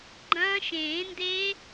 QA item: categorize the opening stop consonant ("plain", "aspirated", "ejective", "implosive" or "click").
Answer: click